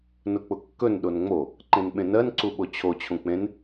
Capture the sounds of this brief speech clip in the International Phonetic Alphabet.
n ʊ k͡p ʊ kː ɵ n ɗ o n ŋ͡m o | ǃ ẽ n ɓ ẽ n ɜ n ǀ u ɓ o t͡ɕʰ o t͡ɕʰ ũ k͡p ẽ n

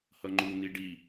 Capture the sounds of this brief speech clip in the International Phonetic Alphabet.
h ʌ ŋ͡ǃ u n̪ i ɖ i

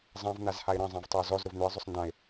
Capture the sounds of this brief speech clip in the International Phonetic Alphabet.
zˤ ã v n̪ a z h a ɪ̯ ɾ ɐ̃ zˤ ã v tˤ œ ʊ̯ z ɔ z ɾ ʊ v n̪ ʏ ə̯ zˤ ʊ sˤ n d ã ɪ̯

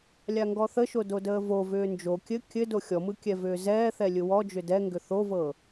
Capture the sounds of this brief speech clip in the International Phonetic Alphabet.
lʲ a ŋ ɡ ɔ θ ə ʃ o d o d əː v o v ʏː n d͡ʒ o kʲ ɘ kʲ ɘ d o xʲ ɔ m ɯ kʲ ɛ v ʏː z ɛː θ ɛ lʲ ɯ w ɔ d͡ʒ ʏ d ɛ ŋ ɡ ʏ θ o v ɤ

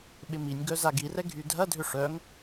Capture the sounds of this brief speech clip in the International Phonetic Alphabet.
ɓ ɪ m i nʲ ɡ œ z a ɡ i r ɛ ɡʱ y dʱ ɐ dʱ ʏ ʂ œ ŋ

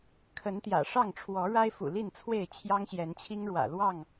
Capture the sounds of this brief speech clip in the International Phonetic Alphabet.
kʰ ə˨˦ n t̪ j ä̰˨˩ ʂ ɑ˥˨ ŋ ʈ͡ʂʰ w ɔ˨˦ ɻ a˦ ɪ̯ f ṵ˨˩ l i˥˨ n t͡sʰ w e˥˨ ɪ̯ t͡ɕʰ j ɑ˦ ŋ ɕ j ɛ˨˦ n t͡ɕʰ i˦ ŋ ɻ w ä̰˨˩ l w ɑ˥˨ ŋ

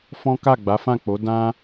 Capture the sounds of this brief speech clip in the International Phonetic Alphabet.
f ɔ̃˦ k a˦˨ ɡ͡b a˨˦ f ã˦˨ k͡p o˨˦ d ã˦

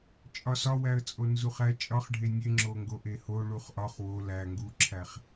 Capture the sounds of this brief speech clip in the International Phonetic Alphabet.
t͡ʃʼ ɒ s ɒ w æ ə̯ t͡sʼ o n z u χ æ t͡ʃʼ ɒ χ ɖʱ e nʲ e ŋ͡ǁ o ŋ ɡ o ʔ e h o ɭ u χ ʔ ɒ χ w o l æ ŋ ɡ u ǁʰ æ χ

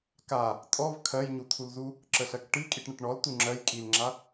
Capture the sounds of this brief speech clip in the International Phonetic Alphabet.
k a | tʼ ɔ v kʰ ɜ j ɲ u t̪ʰ u l z u | ǁ ə ɬ ɜ k ʈ i kʼ i ʈ ɳ ə ʈ ɳ ɔ l t u ŋ͡ǁ ɜ j kʼ i l ŋ͡ǁ a

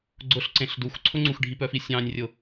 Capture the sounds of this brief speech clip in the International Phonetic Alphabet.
ɡ͡ǀ ʊ ɬ ǀ ẽ ɬ d u x ǀʰ ʊ ŋ͡ǀ u x ɖʱ i p œ f i sʲ ɑ̃ nʲ rʲ ʊ

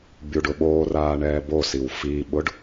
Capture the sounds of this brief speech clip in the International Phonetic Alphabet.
bʲ u ɖ ʊ ɓ oː r aː ɳ ɛː b o s i w f i ɓ ʊ ɖ

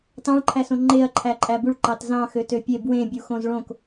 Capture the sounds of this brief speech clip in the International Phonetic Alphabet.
t ɑ̃ ɭ ǃʰ æ s õ ŋ͡ǃ e ɐ̯ ǃʰ æ ǃʼ æ b u ɭ ǃ ɑ t z ɑ̃ x ø t ø pʲ e b w ẽ bʲ u x õ z ɭ õ k

